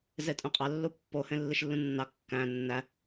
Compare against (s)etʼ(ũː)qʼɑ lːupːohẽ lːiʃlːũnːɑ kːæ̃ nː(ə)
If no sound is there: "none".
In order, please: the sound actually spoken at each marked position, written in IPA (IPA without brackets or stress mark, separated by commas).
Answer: z, ũ, æ